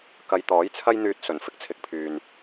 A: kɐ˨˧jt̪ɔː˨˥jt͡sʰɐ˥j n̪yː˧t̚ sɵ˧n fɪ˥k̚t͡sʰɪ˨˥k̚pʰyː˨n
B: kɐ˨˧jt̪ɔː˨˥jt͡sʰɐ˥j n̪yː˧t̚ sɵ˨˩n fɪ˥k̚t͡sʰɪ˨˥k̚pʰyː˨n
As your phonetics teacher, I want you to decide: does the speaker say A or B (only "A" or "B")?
B